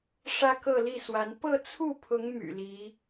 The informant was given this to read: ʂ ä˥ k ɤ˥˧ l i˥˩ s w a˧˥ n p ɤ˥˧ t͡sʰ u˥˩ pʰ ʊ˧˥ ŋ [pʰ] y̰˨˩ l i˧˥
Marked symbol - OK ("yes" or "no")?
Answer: no